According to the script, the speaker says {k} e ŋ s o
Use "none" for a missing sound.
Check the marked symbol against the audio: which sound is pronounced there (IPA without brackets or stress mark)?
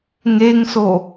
ŋ